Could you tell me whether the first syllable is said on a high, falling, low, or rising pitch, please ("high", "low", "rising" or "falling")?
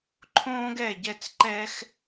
high